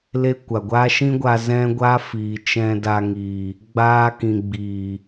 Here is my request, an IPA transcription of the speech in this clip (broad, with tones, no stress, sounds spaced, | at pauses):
l e˦ kʷ a˨ ɡʷ aː˦ ʃ ĩ˦ ɡʷ a˧ z ɛ̃˦ ɡʷ aː˦ f iː˨ t͡ʃ ɛ̃˧ d a˧ ŋ iː˨ | ɡ͡b aː˦ k ĩ˨ ɡ͡b iː˨